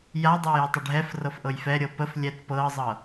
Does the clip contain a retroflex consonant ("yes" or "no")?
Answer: yes